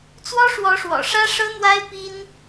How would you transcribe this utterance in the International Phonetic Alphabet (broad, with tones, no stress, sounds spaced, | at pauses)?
t͡s w ɔ˥ ʂ w ɔ˧˥ ʂ w ɔ̰˨˩ ʂ ä˥ ʂ ɤ˥ n̪ w a˥ ɪ̯ p i˥ n